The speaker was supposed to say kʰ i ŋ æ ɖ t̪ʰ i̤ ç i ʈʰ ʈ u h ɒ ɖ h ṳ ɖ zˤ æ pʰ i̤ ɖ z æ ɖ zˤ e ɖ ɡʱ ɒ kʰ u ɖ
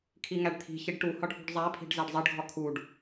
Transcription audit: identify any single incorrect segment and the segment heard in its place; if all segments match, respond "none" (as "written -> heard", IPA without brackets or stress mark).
ʈʰ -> ɖ